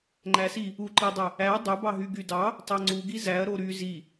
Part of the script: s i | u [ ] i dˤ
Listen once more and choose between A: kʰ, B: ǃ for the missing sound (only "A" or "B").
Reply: B